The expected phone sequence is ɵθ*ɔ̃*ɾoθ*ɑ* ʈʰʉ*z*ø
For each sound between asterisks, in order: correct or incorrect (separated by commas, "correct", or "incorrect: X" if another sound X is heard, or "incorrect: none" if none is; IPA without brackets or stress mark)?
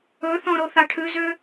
correct, correct, correct